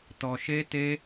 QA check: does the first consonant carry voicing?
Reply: no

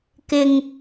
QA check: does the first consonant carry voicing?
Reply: no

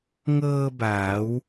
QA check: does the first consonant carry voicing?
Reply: yes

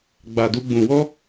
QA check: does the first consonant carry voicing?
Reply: yes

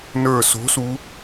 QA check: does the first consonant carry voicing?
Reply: yes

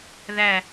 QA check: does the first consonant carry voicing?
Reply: yes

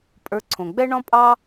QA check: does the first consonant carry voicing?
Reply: no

